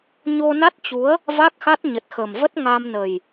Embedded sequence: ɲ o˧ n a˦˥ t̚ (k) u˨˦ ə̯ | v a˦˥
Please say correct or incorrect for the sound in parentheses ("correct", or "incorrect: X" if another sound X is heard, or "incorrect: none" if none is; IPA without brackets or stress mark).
incorrect: t͡ɕ